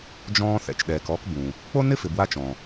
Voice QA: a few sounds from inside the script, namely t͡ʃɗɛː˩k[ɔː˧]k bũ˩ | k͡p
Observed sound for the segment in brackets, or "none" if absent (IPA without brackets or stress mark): ɔː˧